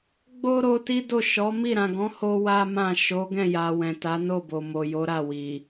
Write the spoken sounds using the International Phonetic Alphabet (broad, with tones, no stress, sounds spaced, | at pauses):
ɡ͡b o˦ ɾ o˧ t i˦ d o˦˨ ʃ ɔ˨˦ m i˦˨ ɾ ã˨ ɡ ɔ̃˨˦ h o˦ w a˦ m ã˦˨ ʃ o˨˦ ɡ ɛ̃˦˨ j a˨ w ɛ̃˨ t a˨˦ n o˦˨ b o˨ m o˨ j o˨˦ ɾ a˦˨ w i˨